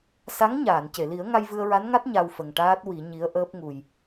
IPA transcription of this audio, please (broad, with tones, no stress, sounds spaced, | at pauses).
s a˧˥ ŋ ɲ aː˨˩˨ n c e˨˩˨ l i˨˩˦ ə̯ ŋ a˧ j v ɨ˧ ə̯ ɹ a˧˥ n ŋ a˦˥ t̚ ɲ a˧ w f ə˨˩ ŋ ʈ aː˦˥ t̚ w i˨˩˦ ɲ i˧˥ ə̯ ʔ əː˦˥ p̚ ŋ u˨˩ j